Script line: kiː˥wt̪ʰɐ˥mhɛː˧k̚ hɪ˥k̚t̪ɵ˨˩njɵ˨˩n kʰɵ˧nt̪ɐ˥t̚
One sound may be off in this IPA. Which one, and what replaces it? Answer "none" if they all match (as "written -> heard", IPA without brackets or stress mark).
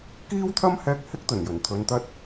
kʰ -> t̪ʰ